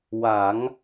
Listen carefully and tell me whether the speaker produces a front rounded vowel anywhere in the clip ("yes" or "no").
no